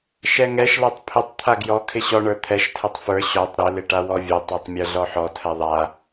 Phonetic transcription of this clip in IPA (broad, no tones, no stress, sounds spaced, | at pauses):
ʃ ɛ ŋ ɛ ʃ l a tˤ pʰ ɪ tˤ t̪ʰ a ɡ j ɔ kʰ ɪ ɕ ɔ ɳ ə˞ t̪ʰ ɛ ʃ tʰ ɛ tˤ f ə˞ ɕ ɔ tˤ ɾ ɪ l ɪ ʈ a w ɔ vʲ ɛ tˤ ə˞ tˤ mʲ ə˞ ɮ ɔ ħ ɔ tʰ ɛ ðˤ a